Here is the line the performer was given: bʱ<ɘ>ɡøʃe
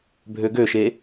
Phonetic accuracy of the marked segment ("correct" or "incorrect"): incorrect